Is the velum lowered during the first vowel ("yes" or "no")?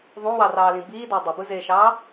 yes